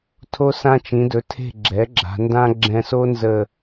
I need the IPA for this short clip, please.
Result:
tʰ o˧ s ã˧ t͡ʃ ĩ˩˧ d ɵ˩˧ tʰ e̤˧˩ ɡ͡ǁ ɛ˩˧ ɡ͡ǁ a̤˩˧ n d ã˥ ɡ͡ǁ ɛ̃˧ s o˥ n z ə˧˩

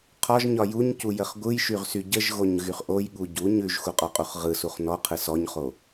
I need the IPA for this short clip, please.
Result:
qʰ ɒ ʒ ɲ ɒ j u ɲ c u j ə χ ɡʷ ɯ j ʃ y ʁ s y ɟ ə ʒ ɣ o ɲ ɣ y χ ʔ o j ɠ u ɟ u ɲ ʉ ʒ x u qʼ ɒ qʼ u χ ʁ ɯ s u χ n ɔ qʰ ɯ s ɔ ɲ χ o

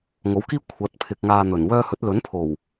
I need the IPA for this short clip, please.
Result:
ŋ o˨˥ w k iː˥ kʷʰ ɐ˨˥ t̚ pʰ ɪ˨ k̚ ŋ aː˧ n̪ ɵ˨˩ n w œː˧ h ɵ˨˥ t̚ l ɵ˨˥ n pʰ o˨˩ w

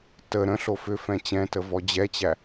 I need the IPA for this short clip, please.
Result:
t ə ɾ ə̃ ɬ o f ʏ f ɛ̃ t͡ɕ ɛ̃ t ə v ɔ d͡ʑ ɛ t͡ɕ æ

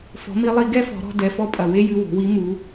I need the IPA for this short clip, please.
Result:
f ɔ̤˩˧ m i˧ lˠ i˧ ɡ ɛ˥ f ɔ̤˩˧ ɾ ɔ̤˧ d ɛ˩˧ f ɔ˧ pʼ ɐ˩ w e˥ j ɨ˧ w o̤˩˧ w i˧˥ m u˩˧

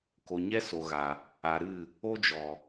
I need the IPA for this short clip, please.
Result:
k o˨ ɲ ɛ˦ s o˨ ɣ a˨ | a˨ ɾ ɨ˦˨ | o˦ d͡ʒ ɔ˨

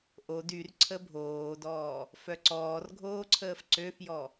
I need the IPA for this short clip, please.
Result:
ʔ o d y r ǀʰ ə bʱ oː d ɔː | f œ ǀ ɔː r ɡʱ oː ǀʰ əː f ǀ ø f j ɔ

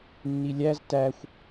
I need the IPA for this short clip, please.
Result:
nː i lʲ æ z t æ xʷ

